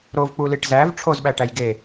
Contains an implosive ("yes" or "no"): yes